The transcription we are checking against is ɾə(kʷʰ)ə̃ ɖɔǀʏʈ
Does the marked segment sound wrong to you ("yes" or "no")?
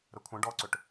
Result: no